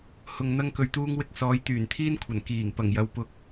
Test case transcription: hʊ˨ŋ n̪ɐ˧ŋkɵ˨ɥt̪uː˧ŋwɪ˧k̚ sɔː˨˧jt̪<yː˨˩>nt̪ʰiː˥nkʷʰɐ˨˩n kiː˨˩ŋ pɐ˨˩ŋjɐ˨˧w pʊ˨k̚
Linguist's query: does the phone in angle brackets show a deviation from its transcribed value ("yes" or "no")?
no